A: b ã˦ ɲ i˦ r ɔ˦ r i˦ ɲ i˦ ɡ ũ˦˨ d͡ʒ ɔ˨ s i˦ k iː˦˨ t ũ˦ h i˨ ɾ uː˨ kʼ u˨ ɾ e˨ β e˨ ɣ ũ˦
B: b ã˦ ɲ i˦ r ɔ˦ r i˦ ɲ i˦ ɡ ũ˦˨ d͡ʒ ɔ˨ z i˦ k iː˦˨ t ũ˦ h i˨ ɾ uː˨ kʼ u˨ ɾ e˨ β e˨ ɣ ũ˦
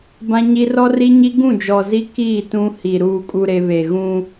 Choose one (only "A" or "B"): B